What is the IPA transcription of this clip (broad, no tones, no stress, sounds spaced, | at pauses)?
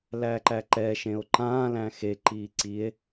l æ ǃ æ ǃ ɛ ʃ ẽ o̯ ǃ ã l æ̃ x e ǃ i ǀ i e̯